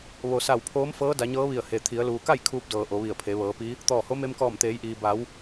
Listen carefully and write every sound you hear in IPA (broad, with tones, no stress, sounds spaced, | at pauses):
ʋ o˩ s a˧˩ w pʰ oː˧˥ m f ɤː˧˥ d a˩˧ ɲ ɤː˧˥ ʋ i˧˩ ə̯ h e˩ t̪ʰ i˩˧ ə̯ l uː˩ k a˥˨ j kʰ uː˧ p̚ d ɤː˩ ʔ o˩˧ ʋ i˧˩ ə̯ pʰ e˩˧ ʋ ɤː˩˧ p i˧˥ | t̪ ɔː˧˩ h o˧˥ m e˧ m k ɔː˧˩ m t̪ eː˩˧ j ʔ iː˩ b a˩˧ w